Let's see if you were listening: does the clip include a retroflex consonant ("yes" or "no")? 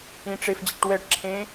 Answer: yes